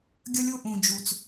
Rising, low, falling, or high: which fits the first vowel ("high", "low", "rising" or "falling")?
high